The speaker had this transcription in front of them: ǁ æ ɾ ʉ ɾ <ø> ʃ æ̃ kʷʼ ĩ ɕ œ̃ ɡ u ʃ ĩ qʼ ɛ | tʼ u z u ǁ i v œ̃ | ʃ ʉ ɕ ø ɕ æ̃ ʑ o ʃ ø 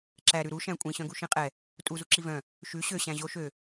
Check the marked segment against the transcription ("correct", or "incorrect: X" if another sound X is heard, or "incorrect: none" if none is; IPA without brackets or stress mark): incorrect: u